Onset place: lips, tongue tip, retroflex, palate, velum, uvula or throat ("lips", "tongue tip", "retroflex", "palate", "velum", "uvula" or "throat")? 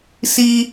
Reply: tongue tip